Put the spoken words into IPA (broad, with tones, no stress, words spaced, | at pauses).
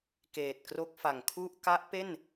keː˨˩t̚kro˦˥k̚ fa˨˩ŋkʰu˥˩ʔ ka˦˥ʔ pe˥˩n